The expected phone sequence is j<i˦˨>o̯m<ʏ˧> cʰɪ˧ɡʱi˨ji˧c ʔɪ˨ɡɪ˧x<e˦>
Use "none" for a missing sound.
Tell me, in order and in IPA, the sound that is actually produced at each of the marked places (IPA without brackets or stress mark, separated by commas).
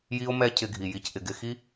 i˧, ɛ˧, i˦